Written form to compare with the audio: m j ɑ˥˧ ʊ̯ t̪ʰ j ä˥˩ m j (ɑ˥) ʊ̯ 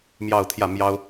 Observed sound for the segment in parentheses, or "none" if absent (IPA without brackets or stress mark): ɑ˥